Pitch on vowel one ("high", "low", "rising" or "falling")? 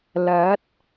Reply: rising